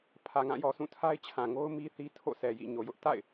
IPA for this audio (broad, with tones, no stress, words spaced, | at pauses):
pʰä˨ŋã˦˨jɔ˨ sũ˦˨tʰa˦ɪ̯t͡ɕʰã˨ŋo˦ʊ̯ mi˦ θi˦tʰo̰˦˨sɛ˨jḭ˦˨ ɲo˨jʊ˦ʔ ta̰˦˨ɪ̯